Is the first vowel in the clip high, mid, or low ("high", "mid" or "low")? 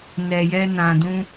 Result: mid